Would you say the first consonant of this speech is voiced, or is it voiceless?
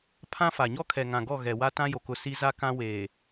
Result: voiceless